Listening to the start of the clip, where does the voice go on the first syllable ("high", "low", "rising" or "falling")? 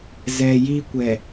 low